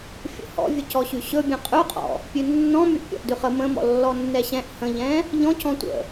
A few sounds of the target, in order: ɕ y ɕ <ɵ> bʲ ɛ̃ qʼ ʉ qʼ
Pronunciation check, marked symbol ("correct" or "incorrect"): correct